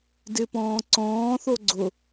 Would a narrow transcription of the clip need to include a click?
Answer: yes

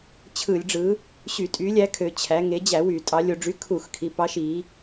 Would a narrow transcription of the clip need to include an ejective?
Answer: yes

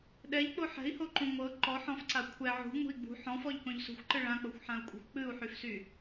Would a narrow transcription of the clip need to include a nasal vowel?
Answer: yes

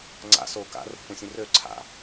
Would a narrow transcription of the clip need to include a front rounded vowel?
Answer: yes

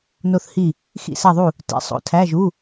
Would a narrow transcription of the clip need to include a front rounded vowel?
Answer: no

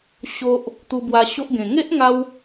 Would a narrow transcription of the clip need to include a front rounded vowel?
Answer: no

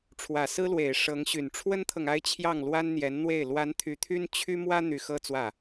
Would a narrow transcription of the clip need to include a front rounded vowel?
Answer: yes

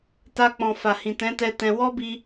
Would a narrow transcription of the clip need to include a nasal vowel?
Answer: yes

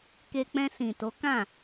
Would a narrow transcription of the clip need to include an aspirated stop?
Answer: no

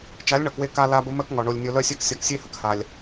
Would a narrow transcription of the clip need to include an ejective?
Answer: no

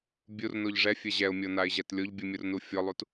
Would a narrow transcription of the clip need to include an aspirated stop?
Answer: no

